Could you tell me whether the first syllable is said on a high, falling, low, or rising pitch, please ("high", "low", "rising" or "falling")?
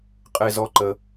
high